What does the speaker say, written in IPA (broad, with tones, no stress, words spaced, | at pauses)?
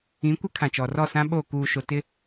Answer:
ĩ˨˦kʷɪ˦ kʰã˨t͡ʃɔ˨rɔ˦˨sã˦ ɓoː˦˨ kuː˨ʃo˨ tɪ˦